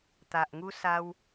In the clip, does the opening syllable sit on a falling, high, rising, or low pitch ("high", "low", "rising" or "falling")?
low